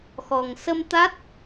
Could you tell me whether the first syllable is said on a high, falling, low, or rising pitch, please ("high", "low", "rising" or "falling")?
low